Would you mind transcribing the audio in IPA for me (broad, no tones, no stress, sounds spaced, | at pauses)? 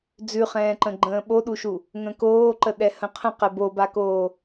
d͡z ʉ χ ɛ̃ː ǃ ə̃ ɡ͡ǃ ə̃ː ɓ o ɗ u ʃ u | ŋ ə̃ k oː ǃ ə ɗ ɛ h ə̃ qʰ ə̃ q ɛ b o b a k oː